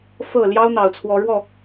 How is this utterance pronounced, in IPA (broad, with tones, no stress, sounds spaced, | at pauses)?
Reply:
f ɤ˥˨ l j ɑ˦ ʊ̯ n̪ ɑ˨˩ ʊ̯ t͡sʰ w ɔ˨˦ ɻ w ɔ˥˨